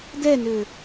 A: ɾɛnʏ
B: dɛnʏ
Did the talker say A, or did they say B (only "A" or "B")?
B